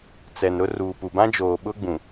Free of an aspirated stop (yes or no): yes